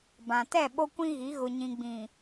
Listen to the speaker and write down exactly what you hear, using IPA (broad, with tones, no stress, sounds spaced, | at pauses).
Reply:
b ã˨ t ɛ˦˨ ɓ o˦ kʷ ĩ˦ ɣ i˨˦ ɣ ʊ˨ ɲ ĩ˨ ɡ͡b ĩ˨